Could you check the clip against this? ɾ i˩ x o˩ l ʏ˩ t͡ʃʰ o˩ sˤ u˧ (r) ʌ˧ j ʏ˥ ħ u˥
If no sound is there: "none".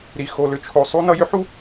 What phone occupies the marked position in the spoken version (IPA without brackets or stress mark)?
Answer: n